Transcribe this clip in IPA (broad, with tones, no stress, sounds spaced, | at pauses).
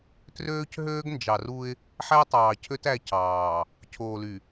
t r øː˦ c ɦ øː˦ ɡ n d͡ʒ ɑ˨ r u˦ ɪ̯ | ħ æ˦ tˤ ɑː˨ cʰ ø˦ t æ˦ c ɑː˨ | cʰ oː˨ l y˨